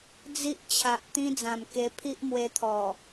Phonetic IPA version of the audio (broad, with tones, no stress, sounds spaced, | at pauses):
d͡z i˦ ʔ t͡ɕʰ a˨ ʔ t̪ ĩ˦ d͡z ã˨˩ m k e˧ pʰ i˦ ʔ m w e˧ t̪ʰ ɔ˨˩